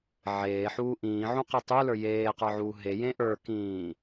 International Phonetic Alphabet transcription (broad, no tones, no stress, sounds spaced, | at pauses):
ʕ eː ħ uː ʔ ĩː ʕ ũ q i tˤ u l ə˞ j eː q ə˞ ʕ uː ɦ e j ẽ ʔ ə˞ k ĩː